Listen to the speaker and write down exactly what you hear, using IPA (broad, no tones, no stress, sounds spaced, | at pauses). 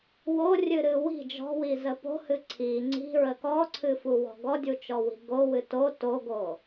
w o rʲ ɨ ɾ ɨ w i̤ d͡ʒ ɔ̤ w i z ə p o̤ h ɨ ǀʰ i ŋ͡ǀ i̤ ɹ ə k ɔ ǀʰ ɨ f u w ɔ̤ ɡ ɔ dʲ u t͡ʃ ɔ w i̤ ɡ o w ɨ t o t o ɡ o